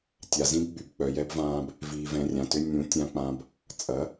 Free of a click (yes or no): yes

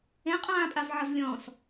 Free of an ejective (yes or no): no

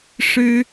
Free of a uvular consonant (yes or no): yes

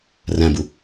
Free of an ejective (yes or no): yes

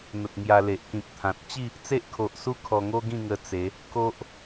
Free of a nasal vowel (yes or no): no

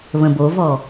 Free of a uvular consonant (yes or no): yes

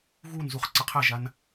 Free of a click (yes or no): no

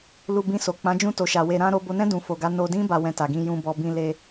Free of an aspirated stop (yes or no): yes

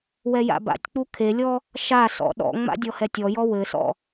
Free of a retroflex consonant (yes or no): yes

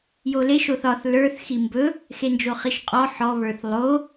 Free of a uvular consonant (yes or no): no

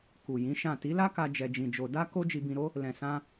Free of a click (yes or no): yes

